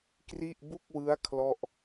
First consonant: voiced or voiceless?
voiceless